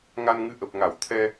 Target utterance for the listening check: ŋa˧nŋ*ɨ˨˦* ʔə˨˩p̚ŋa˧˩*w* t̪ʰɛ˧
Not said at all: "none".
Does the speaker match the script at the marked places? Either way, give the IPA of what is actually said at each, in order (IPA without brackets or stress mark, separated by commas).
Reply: ɨ˨˦, w